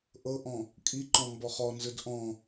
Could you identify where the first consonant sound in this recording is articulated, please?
glottal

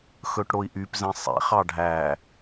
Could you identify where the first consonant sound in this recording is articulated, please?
velar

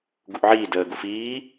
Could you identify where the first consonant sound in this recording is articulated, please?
velar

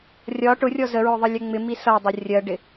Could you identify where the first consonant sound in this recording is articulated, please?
alveolar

